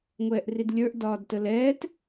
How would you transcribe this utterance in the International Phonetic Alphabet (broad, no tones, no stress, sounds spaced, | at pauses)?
ŋʷ ɛː ʔ r i d lʲ ə˞ ʔ d ɒː d t ə l ɛː t